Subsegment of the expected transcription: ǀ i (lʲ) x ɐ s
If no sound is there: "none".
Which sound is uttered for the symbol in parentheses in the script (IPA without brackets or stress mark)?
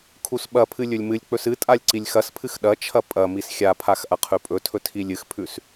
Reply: lʲ